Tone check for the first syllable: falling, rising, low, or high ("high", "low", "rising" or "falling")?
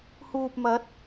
low